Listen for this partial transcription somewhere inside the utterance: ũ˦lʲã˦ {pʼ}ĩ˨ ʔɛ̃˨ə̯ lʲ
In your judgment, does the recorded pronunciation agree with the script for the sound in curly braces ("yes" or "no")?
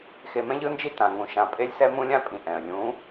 yes